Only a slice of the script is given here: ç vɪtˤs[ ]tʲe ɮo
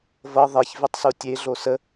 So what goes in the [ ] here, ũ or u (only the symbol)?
u